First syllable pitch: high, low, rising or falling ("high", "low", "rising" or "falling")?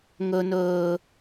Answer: low